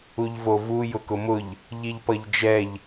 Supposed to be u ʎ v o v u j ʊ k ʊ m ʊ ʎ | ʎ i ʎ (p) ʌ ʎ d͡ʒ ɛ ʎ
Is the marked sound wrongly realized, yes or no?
no